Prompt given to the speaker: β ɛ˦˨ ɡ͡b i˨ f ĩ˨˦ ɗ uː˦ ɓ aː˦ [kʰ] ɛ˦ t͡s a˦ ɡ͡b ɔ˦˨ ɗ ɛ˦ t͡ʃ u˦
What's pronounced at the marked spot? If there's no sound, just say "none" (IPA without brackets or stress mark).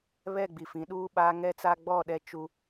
ŋ